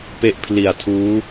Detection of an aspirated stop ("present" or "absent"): present